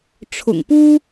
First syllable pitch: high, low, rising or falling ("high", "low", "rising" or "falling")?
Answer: low